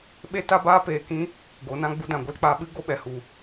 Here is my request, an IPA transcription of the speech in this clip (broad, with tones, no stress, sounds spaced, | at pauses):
ɓ e˦ t a˦ b aː˦ p eː˧ k ĩ˦ | ɡ o˨˦ n ã˦ ɡ͡b u˧ d ã˨ ɡʷ ɨ˧ l k͡p a˧ ɓ ɨ˦ ɡ o˦ ɓ ɛ˨ h u˨